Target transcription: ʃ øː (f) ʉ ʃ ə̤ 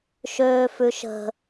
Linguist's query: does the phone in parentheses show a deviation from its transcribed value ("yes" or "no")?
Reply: no